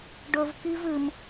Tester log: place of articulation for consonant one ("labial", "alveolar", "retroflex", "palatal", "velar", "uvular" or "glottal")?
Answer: retroflex